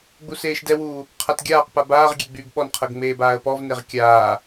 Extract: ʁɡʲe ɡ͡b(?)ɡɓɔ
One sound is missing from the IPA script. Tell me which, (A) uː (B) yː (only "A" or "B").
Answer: B